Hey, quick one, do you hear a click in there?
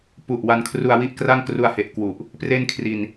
no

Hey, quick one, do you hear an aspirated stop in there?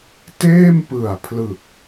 yes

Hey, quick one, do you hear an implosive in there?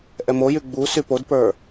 no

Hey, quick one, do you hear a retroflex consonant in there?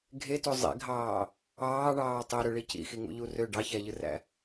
yes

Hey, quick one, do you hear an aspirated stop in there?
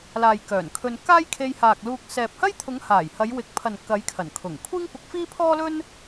yes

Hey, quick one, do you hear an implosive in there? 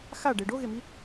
no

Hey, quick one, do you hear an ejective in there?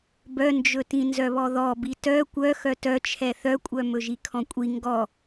yes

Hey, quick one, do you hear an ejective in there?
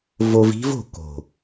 no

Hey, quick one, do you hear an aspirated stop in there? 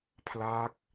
yes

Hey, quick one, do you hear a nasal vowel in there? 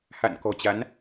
no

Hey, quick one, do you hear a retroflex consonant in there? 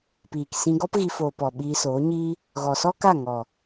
no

